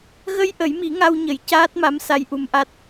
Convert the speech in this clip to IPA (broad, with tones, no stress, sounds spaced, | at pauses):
ɣ ə˧ j ʔ ə˨˩˦ j m i˨˩˦ ŋ a˧ w ɲ ə˨˩˦ j c aː˦˥ t̚ m a˧˥ m s a˧˥ j ʔ u˧˥ m ʔ a˦˥ t̚